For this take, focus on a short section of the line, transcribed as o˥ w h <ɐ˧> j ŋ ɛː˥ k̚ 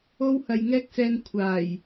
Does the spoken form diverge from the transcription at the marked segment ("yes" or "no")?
no